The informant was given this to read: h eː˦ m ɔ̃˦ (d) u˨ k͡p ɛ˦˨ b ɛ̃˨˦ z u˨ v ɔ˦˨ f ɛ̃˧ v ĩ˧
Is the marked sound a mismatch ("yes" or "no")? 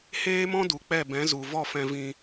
no